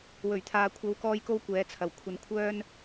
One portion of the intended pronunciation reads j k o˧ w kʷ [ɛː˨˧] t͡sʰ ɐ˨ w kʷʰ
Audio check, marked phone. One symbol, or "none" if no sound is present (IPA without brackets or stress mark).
ɛː˨˧